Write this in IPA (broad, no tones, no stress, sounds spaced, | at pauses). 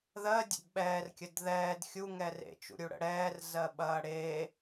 ð ɜ dʲ ə̰ d ɓ ɛː r kʲ ə d ð ɛː d xʲ u ŋ ɛ r ḛ t͡ʃ ṵ ɾʲ u ɽ ə̰ ɽ ɛː r z ɜ ɓ ɐː ɽ e